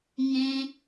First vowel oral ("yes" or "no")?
no